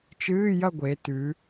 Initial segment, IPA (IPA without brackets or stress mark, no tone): t͡ʃ